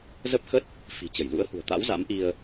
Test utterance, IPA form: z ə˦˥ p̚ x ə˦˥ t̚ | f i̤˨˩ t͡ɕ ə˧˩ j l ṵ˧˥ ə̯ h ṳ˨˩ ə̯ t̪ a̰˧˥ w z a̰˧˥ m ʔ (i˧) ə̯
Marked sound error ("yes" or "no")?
no